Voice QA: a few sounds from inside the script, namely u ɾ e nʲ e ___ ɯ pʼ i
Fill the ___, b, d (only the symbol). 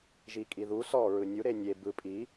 b